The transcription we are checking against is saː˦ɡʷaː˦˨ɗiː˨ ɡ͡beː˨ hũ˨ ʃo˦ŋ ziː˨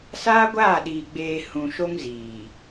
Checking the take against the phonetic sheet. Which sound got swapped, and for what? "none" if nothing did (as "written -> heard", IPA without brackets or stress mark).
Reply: none